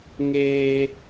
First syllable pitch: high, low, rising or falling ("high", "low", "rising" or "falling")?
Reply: high